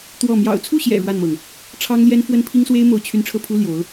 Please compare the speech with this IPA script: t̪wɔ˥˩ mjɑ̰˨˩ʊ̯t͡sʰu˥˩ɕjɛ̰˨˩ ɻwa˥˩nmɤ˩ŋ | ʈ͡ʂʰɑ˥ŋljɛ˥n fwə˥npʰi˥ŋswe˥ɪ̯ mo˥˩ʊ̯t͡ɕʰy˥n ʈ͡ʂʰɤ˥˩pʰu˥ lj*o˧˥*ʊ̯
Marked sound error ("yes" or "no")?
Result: no